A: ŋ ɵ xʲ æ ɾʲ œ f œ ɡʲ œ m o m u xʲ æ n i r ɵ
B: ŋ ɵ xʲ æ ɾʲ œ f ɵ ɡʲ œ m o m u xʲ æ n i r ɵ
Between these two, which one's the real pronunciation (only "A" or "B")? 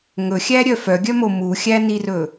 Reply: A